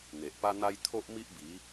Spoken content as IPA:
n̪ e˨ ʔ p a˦ n̪ a˦ j t̪ʰ o˦ ʔ m i˦ ʔ b i˨˦

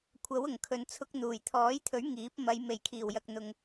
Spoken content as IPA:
kʷʰ ɐ˨˥ w ʊ˨˩ ŋ kʰ ɵ˨ n t͡sʰ ʊ˧ k̚ n̪ uː˨˩ j t̪ʰ ɔː˨˥ j t̪ʰ ɵ˨˥ ɥ ŋ iː˨˥ p̚ m ɐ˨˧ j m e˨˩ j kʰ iː˨˩ w j ɐ˨ k̚ n̪ ʊ˧ ŋ

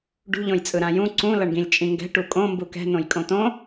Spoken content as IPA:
ɖ ṳ ʎ õ j t͡sʼ ɯ ɾ ã j ũ ǀ ũ l ʌ ɳ ɡ ĩ lʲ t͡ʃʼ ĩ ŋ ɡ ɛ̤ ʈ u kʼ õ m b u k ɛ̤ n õ j kʼ õ t õ

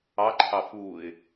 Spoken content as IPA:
ɑ ǃʰ ɑ f u ɪ̯

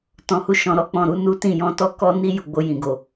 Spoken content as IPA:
t ɔ̃˨ h u˧ ʃ ɔ̃˨ ɾ ɔ˧ k͡p ɔ̃˨ ɾ u˧ n u˦ t ĩ˦˨ j ɔ̃˧ t ɔ˦ k ɔ˦ n i˦ j u˧ ɡ͡b o˧ j ĩ˨ ɡ o˨

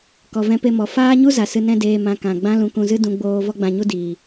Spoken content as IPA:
k ɔ˨ v ɛ̃˧ p e˧ m ɔ˨ f aː˦ ɲ u˦ z a˨ s ɨ˧ n ɛ̃˦ d eː˧ m ã˧ k ã˨ ɡ͡b ã˦ l ũ˧ k ũ˧ z ɨ˦ d ũ˧ ɡ͡b oː˧ v ɔ˦ ɡ͡b ã˧ ɲ u˦ d iː˨

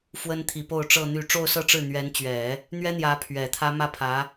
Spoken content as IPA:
f w ə˥ n t̪ʰ i˧˥ p o˥˧ ʊ̯ ʈ͡ʂ ɤ˥˧ n̪ y˥˧ ʈ͡ʂ o˥˧ ʊ̯ s ɤ˥˧ ʈ͡ʂ ɻ̩˥˩ n̪ ɥ ɛ˧˥ n t͡ɕ ɥ ɛ˨˩˦ | n̪ ɥ ɛ˥ n̪ j ä˧˥ pʰ ɥ ɛ˨˩ t̪ʰ ä˥ m ä˥˩ pʰ ä˧˥

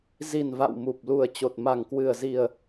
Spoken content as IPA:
z i˨˩ n v a̰˧˨ w m u˨˩ p̚ l u˨˩ ə̯ t͡ɕ o˨˩ t̚ m a˨˩ ŋ k w ɨ˨˩ ə̯ z i˨˩ ə̯

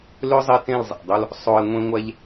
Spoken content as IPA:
l ø˦ zˤ ɛ˧ t ẽ˦˨ l zˤ æ̰˨ dˤ o˦ l | sˤ o˧ e̯ ŋʷ ẽ˦ ŋʷ æ˦ ʎ

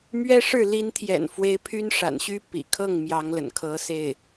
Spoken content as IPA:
m ɥ ɛ˥ ʂ ɻ̩˥˩ l i˧˥ n t̪ʰ j ɛ̰˨˩ n f w e˧˥ ɪ̯ pʰ y˥ n ʂ a̰˨˩ n ɕ y˥ p ḭ˨˩ kʰ ɤ˥˩ ŋ m j ɑ˧˥ ŋ l ə̰˨˩ n kʰ ɤ˧˥ s e˥˩ ɪ̯

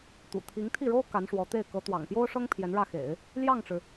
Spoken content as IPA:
t̪ ṵ˨˩ t̪ʰ i˧˥ ŋ t̪ʰ i˥˩ ɻ o˥ ʊ̯ k a˧˥ n ʂ w ɔ˧˥ t̪ e˥˩ ɪ̯ k ɤ˧˥ t̪ w ɑ̰˨˩ ŋ p j o˥ ʊ̯ ʂ ɤ˥ ŋ pʰ j ɛ˧˥ n ɻ ä˥˩ x ḛ˨˩˦ ɪ̯ | l j ɑ˥˩ ŋ ʈ͡ʂ ɻ̩˩

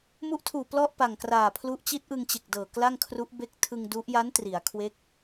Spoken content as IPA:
m u˦˥ ʔ tʰ uː˨˩ p l ɔ˥˩ ʔ p a˨˩ ŋ k r aː˨˩ pʰ l u˦˥ ʔ t͡ɕ i˦˥ t̚ ʔ ɯ˧ ŋ t͡ɕ e˨˩ k̚ d ɤː˨˩ k l a˥˩ ŋ kʰ r u˦˥ ʔ b e˦˥ k̚ tʰ ɯ˧ ŋ d u˦˥ ʔ j a˦˥ n t r i˩˦ a̯ kʰ w e˦˥ k̚

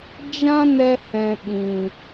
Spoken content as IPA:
d͡ʒ ã˦ n ɛ˧ h ɛ̃˨ ɓ ĩ˨

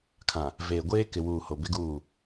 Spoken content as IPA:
kʰ ã˨ | v eː˨ ɡʷ eː˦ k ɪ˨ w uː˨ h o˨ b ɪ˦ ɡ uː˦˨

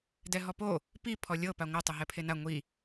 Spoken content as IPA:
d ɛ ɦ ɔ p o | p i pʰ ɔ lʲ ɤ p a ŋʷ ɯ tˤ ɯ ɦ ɛ pʰ e n a ŋʷ i

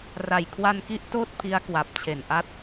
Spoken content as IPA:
r a˨˩ j kʰ w a˧ n k i˦˥ ʔ t oː˥˩ t̚ pʰ i˦˥ a̯ k w a˨˩ p̚ t͡ɕʰ e˨˩ n ʔ a˦˥ t̚

